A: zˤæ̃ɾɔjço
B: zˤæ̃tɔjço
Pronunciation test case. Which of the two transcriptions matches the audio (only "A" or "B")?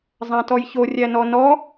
B